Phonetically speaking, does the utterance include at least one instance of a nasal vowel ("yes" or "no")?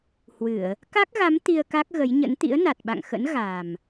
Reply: no